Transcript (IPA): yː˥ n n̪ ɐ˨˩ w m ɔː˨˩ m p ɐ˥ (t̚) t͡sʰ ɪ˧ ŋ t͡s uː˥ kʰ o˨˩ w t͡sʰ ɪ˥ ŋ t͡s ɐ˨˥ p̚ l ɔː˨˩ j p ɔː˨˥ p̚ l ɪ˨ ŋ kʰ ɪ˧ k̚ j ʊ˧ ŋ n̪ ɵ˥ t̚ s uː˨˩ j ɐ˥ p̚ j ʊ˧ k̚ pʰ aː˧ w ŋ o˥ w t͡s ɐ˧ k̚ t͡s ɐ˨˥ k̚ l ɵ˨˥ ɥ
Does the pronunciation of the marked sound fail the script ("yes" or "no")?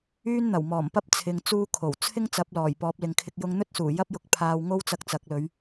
yes